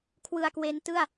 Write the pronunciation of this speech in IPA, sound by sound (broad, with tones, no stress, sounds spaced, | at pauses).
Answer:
kʰ w ɯ˧ a̯ k w e˦˥ n t ɯ˥˩ a̯